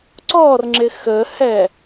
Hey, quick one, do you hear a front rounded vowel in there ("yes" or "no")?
no